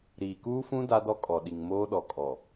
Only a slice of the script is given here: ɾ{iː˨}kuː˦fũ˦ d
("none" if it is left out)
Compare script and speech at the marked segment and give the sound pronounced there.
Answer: iː˨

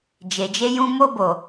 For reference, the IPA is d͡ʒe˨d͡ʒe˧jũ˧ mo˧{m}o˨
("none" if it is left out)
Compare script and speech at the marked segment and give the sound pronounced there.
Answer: b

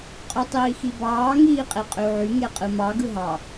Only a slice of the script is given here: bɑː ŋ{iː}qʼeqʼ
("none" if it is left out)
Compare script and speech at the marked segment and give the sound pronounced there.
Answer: iː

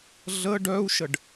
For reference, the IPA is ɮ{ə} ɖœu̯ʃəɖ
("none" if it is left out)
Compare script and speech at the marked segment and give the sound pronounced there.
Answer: ə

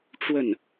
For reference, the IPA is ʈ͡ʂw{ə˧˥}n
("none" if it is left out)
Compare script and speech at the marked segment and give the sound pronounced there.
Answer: ə˥˩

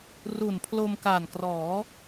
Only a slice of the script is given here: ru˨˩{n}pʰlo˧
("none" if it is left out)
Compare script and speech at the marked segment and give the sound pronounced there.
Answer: n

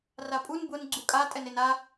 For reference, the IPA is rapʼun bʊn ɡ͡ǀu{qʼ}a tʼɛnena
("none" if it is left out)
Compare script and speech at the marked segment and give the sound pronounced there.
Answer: kʼ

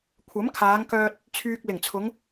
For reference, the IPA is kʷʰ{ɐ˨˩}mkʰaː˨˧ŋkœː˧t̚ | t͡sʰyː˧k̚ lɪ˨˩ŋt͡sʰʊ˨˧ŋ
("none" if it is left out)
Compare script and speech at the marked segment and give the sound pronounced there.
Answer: ɐ˨˥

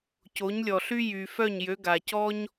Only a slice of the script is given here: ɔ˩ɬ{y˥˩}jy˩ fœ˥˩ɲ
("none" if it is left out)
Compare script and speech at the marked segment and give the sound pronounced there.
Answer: y˥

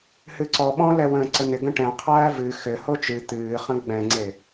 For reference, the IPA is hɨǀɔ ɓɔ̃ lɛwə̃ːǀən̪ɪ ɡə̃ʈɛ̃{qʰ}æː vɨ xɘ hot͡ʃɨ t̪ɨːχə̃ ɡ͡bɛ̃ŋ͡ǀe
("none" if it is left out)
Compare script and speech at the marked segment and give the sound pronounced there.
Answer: qʰ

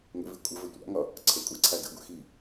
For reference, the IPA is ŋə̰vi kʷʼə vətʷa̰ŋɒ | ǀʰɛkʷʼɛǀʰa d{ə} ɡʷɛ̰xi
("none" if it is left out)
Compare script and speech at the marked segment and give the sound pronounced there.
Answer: ə̰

